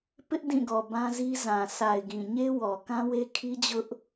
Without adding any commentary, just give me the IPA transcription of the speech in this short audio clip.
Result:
pɪ˦ʔdĩ˦˨ɡɔ˨ bã˦zi˦ zã˨sa˨ɪ̯ɡĩ˨ ɲe˦wɔ˨ kã˦we˦ kʰi˦d͡ʑʊ˦ʔ

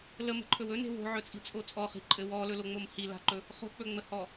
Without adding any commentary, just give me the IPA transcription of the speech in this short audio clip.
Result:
ləmə̤ǃʰɵw ɵne̤ wo̤ʕɵt͡sʼi̤t͡sʼo t͡sʼɔχi̤ǃʼɘ wɔlɵloŋ͡mom hila̤ǃɵ | χo̤k͡pɵŋ͡məhɔ

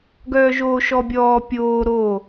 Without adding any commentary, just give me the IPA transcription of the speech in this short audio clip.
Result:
ɡœːʒoːʃɔbʲɔː pʲoː ɾo

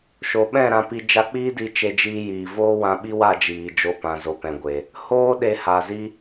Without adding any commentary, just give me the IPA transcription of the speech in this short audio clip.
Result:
ʃo˨ɓɛ̃˦˨ ɾã˧pi˧ d͡ʒa˧k͡piː˦di˧ t͡ʃe˧d͡ʒiː˧jiː˨ voː˦wã˧ɓi˦wa˦˨ d͡ʒiː˨d͡ʒo˧pã˨ zo˨pɛ̃˨ɡʷe˨ | hoː˦ ɗe˧ha˨zi˦

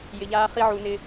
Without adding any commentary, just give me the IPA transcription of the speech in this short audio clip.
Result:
jɪ˧ʎaː˦χi˦ʕu˧ nɪ˦

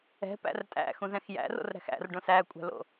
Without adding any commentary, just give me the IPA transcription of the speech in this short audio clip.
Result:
ɛ̤pæ̰r tʼæ̰xũzɛ̃x jæ̰ro̰rɾæ̤x æ̰rɖõs ækʷʼæ̤lo̰

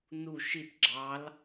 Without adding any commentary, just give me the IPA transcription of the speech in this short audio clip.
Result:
nu ʃit ɡ͡ǁɑl

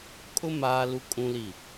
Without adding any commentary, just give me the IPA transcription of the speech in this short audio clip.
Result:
kʼʊ˦ maː˦lu˦kʼũ˦li˦˨

